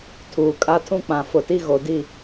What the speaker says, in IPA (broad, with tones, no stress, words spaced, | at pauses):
tʰuː˨kʼa˦tʰũ˦k͡pã˨ fʊ˨ti˦ɣo˨di˦˨